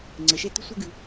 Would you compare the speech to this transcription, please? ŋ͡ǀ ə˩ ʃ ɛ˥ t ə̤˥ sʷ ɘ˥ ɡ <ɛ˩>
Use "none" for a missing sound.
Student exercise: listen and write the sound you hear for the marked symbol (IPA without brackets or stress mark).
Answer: ɨ˩